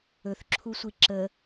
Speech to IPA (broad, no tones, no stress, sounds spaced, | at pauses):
ɵ θ ǁʰ u sʷ i ǁ ə